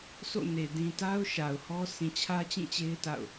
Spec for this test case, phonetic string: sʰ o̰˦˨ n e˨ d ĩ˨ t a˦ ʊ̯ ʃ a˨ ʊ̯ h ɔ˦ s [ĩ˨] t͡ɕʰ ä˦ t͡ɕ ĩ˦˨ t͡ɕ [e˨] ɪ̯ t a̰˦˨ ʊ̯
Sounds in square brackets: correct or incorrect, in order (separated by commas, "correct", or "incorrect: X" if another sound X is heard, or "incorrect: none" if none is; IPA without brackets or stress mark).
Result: correct, incorrect: e˦